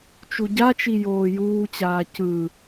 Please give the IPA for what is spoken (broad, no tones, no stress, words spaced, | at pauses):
t͡ʃuɟat͡ʃi joːjuːt͡ɕaː cɯ